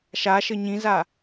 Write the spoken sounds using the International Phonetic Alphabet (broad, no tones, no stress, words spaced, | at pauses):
ʃaʃɘ ɲĩza